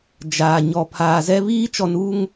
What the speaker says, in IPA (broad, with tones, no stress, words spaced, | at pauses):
d͡ʒaː˨ ɲɔ˨ pʰaː˨zɛ˦ βiː˦t͡ʃɔ˨nuː˦ŋ